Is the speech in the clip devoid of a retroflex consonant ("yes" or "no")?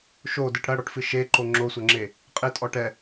no